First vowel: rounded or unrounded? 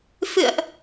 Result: unrounded